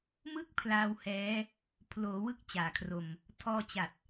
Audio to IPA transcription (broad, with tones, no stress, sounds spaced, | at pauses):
m ɯ˥˩ k̚ pʰ l aː˧ w h ɛː˦˥ | pʰ l oː˩˦ w ɯ˦˥ k̚ t͡ɕ aː˨˩ kʰ r o˧ m | tʰ ɔː˧ t͡ɕ a˨˩ t̚